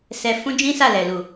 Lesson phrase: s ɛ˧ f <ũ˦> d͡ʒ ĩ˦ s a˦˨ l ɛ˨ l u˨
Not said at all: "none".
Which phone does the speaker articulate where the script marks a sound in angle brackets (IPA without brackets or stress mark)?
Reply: ũ˦